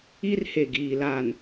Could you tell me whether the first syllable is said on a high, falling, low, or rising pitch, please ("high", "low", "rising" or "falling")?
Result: high